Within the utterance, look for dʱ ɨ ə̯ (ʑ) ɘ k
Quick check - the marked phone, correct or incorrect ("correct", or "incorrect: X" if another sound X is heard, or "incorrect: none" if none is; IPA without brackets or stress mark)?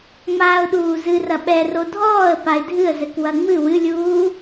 incorrect: z